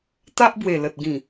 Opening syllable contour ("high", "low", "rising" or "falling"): high